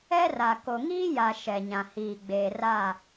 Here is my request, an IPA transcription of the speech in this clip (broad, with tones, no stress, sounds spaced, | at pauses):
ɛ˦ r a˨ k o˨ ŋ iː˦ j a˨ ʃ ɛ˨ ɲ ã˨ h iː˨ ɡ͡b eː˨ r a˦˨